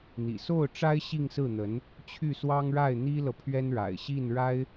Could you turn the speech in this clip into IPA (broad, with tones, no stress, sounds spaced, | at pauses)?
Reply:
n̪ ḭ˨˩ s o˥˩ ʊ̯ ʈ͡ʂ a˥ ɪ̯ ɕ i˥˧ ŋ s ɹ̩˥˩ n̪ ə˧˥ n | t͡ɕʰ y˥˩ s w ɑ˥ ŋ ɻ a˥˩ ɪ̯ n̪ i˥ l ɤ˨ pʰ ɥ ɛ˥ n ɻ a̰˨˩ ɪ̯ ɕ i˥˩ n ɻ a˥ ɪ̯